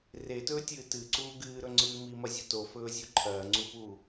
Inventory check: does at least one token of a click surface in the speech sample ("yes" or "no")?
yes